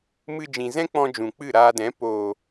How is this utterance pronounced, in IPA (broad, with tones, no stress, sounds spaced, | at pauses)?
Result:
m ɨ˧ d͡ʒ ĩ˨ z ɛ̃˦ k͡p ɔ̃˧ d͡ʒ ũ˨ k͡p ɨ˦˨ ɾ aː˧ d ɛ̃˨˦ p oː˨